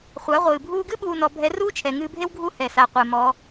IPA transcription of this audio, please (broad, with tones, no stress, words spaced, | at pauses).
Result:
χʷa˩˧ʁʷɨː˩bʱuː˧ɡɨ˥ ɓuː˧ nɔ˩˧ bʱɛ˧˥ ruː˥t͡ʃʰɛ˩ŋɨː˧bʱe˥w ɡʱu˥hɛ˩sa˩ qʷe˩ mɔ˩˧